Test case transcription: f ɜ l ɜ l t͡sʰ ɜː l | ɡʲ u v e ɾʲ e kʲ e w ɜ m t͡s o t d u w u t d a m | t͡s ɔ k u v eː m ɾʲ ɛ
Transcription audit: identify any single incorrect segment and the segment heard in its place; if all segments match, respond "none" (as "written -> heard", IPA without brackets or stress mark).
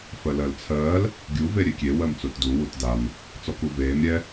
none